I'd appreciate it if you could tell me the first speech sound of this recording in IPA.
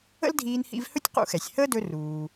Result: ə̰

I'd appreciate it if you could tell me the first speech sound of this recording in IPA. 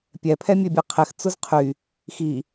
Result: pʲ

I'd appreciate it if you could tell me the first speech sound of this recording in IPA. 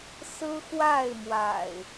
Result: s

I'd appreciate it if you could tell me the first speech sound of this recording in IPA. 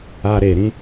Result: aː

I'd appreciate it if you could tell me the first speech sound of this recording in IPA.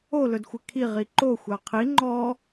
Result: o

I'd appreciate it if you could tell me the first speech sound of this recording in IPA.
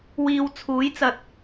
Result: w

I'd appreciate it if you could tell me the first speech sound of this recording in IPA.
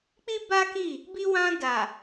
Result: k͡p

